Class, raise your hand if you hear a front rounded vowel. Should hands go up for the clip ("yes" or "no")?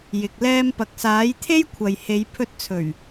no